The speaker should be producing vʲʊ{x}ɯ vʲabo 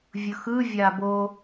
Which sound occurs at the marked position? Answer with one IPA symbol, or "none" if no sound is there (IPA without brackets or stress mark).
x